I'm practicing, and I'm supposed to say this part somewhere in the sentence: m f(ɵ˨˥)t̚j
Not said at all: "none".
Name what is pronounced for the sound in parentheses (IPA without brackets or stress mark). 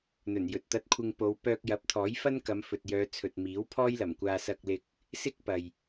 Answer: ɵ˨